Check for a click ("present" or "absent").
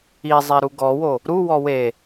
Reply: absent